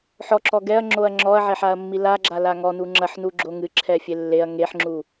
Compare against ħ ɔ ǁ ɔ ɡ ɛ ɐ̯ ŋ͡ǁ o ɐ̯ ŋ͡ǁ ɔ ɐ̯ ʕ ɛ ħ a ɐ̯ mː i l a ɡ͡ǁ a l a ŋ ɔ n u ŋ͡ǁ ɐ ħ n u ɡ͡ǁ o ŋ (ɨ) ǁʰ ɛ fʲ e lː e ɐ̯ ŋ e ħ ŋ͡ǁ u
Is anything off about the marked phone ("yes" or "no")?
no